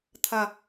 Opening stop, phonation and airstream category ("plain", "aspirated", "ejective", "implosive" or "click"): aspirated